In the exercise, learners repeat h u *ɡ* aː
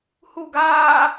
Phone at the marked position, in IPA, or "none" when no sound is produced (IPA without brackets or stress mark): ɡ